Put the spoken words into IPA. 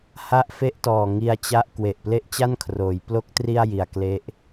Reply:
h a˦˥ ʔ f e˦˥ ʔ t ɔː˨˩ ŋ i˧ a̯ t͡ɕ a˦˥ ʔ k w e˨˩ ʔ p l e˥˩ ʔ t͡ɕ a˥˩ n kʰ r oː˩˦ j p l o˦˥ k̚ t r i˥˩ a̯ j i˨˩ a̯ k l e˦˥ ʔ

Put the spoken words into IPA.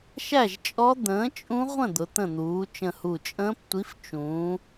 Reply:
ʃ æ˥˨ ʒ t͡ʃʼ ɔ˦˥ d̪ ə̃ː˨˥ t͡ʃʼ ũ˦˥ ʁʷ ə̃˥˨ d̪ ʊ˩˧ t̪ ə̃˧˩ n̪ uː˩˧ t͡ʃ ə̃˧˩ h u˧˩ t͡ʃʼ ə̃ː˦˥ p tʷ i˨˥ f t͡ʃ ũː˩˧

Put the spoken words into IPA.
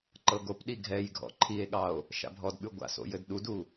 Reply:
ǃ ɤ ɡ o p ɗ i ɡʱ ɛ j ɡʱ ɔ̰ ǃʰ i e̯ ɠ ɑ o̯ | ʃ a̰ bʱ ɔ d ɓ ʉ ɡʷ a̰ s o̰ j ɘ d ɗ u d u

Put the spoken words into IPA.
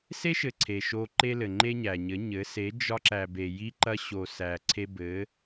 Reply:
s e˦ ʃ ɘ˨ ǀʰ e˨ ʃ o˧ ǃ e˦ l ɘ˨ ŋ͡ǃ e˦ ɲ æ˨ ɲ ɘ˨˦ ɲ ɘ˨˦ s e˨˦ d͡ʒ ɒ˧ ǁ æ˨ b e˨ j i˧ ǃ ɐ˧ ɕ o˨ s æ˨ ǀʰ e˧ b ɘ˨˦

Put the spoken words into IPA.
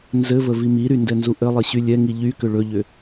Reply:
n z ɘ v ə v i m i ɾ y n d ɛ n z u ʔ ɘ lˠ i ɕ y lʲ ɛ ŋ i ʎ y k ʏ ɭ ɵ ʎ ʏ

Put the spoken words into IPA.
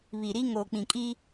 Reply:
β i˨ ɾ i˦ ŋ oː˨ k͡p ĩ˨ kʼ i˦

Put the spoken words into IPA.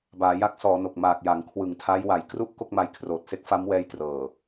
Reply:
b aː˩˦ j a˦˥ k̚ s ɔː˩˦ n o˨˩ k̚ m aː˨˩ k̚ j a˩˦ ŋ kʰ w ɯ˨˩ ŋ tʰ a˦˥ j w a˩˦ j k r u˥˩ ʔ k o˥˩ k̚ m a˧ j kʰ r oː˨˩ t̚ s e˦˥ k̚ f a˦˥ m w ɛː˧ j t r ɤː˨˩

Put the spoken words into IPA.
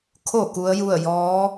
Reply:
kʰ o˧˩ k u˧˥ ə̯ j u˥˨ ə̯ j ɔː˧˥

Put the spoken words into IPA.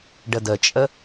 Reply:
ɖ ə d ə t͡ʃʼ ə

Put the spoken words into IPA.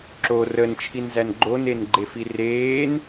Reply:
ǁ o r ə n t͡ʃʰ i n z æ n ɡ͡ǃ o n e n ɡ͡ǃ e f i r eː n

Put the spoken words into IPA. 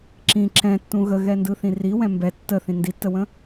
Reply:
ǁ ĩ ǁ ɛ̃ tː ũ ɣ ə ɣ ɛ n d ɯ θ ĩ r i w ɛ̃ m b ɛ tː ə θ ĩ n d i tː ə w ə̃

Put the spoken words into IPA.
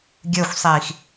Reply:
ɡʲ ə˞ xʷ sˤ iː x

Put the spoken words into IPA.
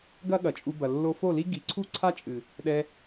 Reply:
ɡ ɐ˦ ɠ ɐ˨ t͡ʃʼ u˧ b ɐ˨ lː o˧ f o˦˨ l i˦ ɡ i˨ ǀʰ u˦ ǀʰ a˦ t͡ʃʼ ɨ˨ | ɗ ɛ˧

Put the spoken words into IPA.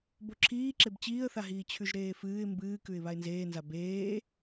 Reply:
b o ǁʰ iː ǁ e b t͡ɕ iː ə̯ θ a ɦ iː t͡ɕʰ ʉ ʒ ɾ eː f ɨː ɪ̯ m b ɨː k ʉ ɪ̯ β a ɪ̯ n z eː n z a b eː

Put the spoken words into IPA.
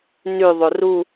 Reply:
n ʉ ðˤ o r u

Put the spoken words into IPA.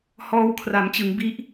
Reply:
h ɔː˧ w kʰ r a˩˦ m t͡ɕ ɯ˩˦ ŋ b i˦˥ ʔ

